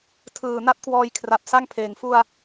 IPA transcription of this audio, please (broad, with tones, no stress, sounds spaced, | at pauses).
tʰ ɯː˨˩ n a˦˥ t̚ k w ɔː˧ j kʰ r a˨˩ p̚ s a˥˩ ŋ pʰ eː˨˩ ŋ f u˧ a̯